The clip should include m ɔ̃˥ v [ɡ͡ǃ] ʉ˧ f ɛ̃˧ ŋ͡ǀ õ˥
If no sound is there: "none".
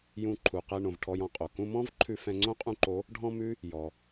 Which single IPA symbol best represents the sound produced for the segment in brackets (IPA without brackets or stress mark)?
ǃʰ